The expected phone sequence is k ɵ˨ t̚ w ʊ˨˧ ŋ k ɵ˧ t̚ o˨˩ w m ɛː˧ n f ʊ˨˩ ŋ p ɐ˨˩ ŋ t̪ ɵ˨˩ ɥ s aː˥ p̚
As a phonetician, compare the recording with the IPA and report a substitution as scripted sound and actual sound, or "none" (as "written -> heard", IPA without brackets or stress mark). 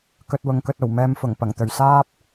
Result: n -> m